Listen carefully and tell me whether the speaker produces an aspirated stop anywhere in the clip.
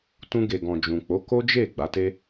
no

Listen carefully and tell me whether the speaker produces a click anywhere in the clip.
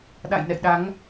no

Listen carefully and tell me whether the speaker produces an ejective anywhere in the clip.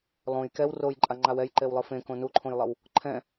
yes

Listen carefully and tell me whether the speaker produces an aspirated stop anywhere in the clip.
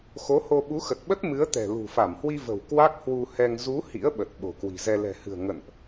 no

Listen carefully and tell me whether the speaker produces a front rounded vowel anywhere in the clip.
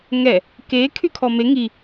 yes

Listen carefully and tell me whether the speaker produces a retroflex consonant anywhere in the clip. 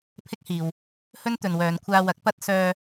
no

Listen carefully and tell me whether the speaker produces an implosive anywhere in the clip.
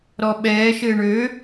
yes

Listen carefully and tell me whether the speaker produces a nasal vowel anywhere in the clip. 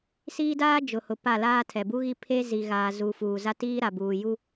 no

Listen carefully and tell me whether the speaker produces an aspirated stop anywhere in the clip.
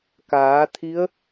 yes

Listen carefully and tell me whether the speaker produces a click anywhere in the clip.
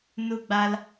no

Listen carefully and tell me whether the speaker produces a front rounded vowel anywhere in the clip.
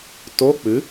no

